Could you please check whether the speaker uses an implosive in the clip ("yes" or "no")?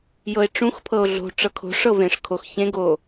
no